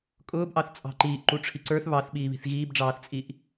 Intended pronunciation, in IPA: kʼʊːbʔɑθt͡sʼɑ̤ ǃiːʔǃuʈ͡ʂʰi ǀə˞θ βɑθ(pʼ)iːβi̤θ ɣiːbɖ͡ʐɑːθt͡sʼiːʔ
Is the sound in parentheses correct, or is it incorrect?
incorrect